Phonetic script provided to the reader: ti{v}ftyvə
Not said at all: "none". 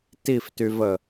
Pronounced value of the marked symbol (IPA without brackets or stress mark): none